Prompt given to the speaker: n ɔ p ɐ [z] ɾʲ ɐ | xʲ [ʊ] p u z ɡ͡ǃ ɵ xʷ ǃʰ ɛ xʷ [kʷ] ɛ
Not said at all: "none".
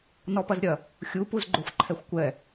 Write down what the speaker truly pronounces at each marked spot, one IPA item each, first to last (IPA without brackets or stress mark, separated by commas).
z, u, kʷ